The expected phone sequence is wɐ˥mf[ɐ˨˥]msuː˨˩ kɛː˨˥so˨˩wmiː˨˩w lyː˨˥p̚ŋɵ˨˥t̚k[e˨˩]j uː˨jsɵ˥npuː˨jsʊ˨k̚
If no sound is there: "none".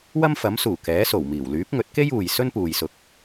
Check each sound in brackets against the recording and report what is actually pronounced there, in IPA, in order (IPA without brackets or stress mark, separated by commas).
ɐ˨˥, e˥